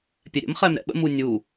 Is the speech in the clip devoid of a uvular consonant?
no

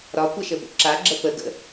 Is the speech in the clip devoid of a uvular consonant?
yes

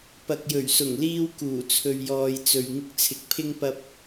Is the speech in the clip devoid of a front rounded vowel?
yes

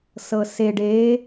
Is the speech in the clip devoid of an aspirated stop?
yes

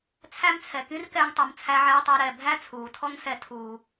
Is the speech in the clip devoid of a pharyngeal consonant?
no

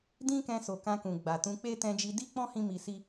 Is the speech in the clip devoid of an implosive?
yes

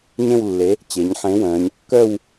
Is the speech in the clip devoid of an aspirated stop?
yes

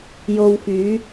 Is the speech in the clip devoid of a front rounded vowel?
no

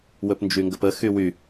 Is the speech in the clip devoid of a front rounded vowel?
no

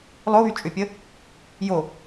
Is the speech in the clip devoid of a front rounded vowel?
no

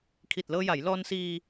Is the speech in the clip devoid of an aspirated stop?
no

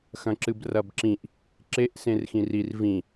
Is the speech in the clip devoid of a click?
no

